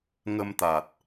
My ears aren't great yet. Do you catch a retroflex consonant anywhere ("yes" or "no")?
no